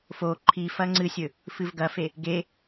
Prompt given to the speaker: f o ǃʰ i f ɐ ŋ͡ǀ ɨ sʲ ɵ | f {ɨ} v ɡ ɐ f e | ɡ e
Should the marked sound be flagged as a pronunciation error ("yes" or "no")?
no